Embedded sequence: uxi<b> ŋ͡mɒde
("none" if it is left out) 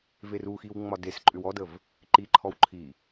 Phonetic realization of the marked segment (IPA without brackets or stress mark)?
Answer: w